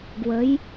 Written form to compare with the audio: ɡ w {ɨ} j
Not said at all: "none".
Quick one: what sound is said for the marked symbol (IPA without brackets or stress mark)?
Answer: ə